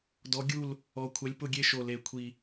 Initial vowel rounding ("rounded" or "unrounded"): rounded